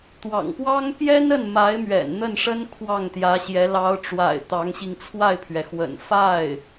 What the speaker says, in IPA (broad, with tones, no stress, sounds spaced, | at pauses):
t̪ w ɑ̰˨˩ ŋ p w ɑ˥ ŋ p j ɛ˥ n ə˥˩ n m a˧˥ ɪ̯ m ɥ ɛ̰˨˩ n n̪ ə˥˩ n ʂ ə˥ n kʰ w ɑ˥˩ ŋ t̪ j ä˧˥ ɕ j ɛ˧˥ l ɑ˧˥ ʊ̯ ʈ͡ʂ w a̰˨˩ ɪ̯ t̪ ɑ˧˥ ŋ ɕ i˧ ŋ t͡sʰ w a˥˩ ɪ̯ pʰ ɥ ɛ˩ x w ə̰˨˩ n f a˥˩ ɪ̯